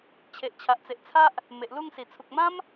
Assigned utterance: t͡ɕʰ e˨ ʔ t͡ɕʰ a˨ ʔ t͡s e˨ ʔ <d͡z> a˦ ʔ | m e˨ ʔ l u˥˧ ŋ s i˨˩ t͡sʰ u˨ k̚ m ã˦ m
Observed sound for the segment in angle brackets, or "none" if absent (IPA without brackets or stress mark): t͡sʰ